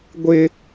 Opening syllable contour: high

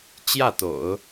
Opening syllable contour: falling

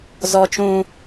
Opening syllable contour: high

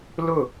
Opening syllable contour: falling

